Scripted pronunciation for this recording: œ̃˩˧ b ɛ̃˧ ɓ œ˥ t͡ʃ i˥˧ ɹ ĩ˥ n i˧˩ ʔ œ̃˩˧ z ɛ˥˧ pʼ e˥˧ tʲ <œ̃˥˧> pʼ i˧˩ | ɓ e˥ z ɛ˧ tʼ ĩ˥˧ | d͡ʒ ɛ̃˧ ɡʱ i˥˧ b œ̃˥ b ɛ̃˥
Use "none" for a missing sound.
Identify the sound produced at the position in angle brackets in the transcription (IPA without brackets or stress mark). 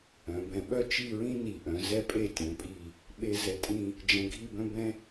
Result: œ̃˩˧